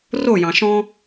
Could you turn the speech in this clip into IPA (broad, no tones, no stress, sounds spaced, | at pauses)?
r o j ɑ̃ ʃ ɔ̃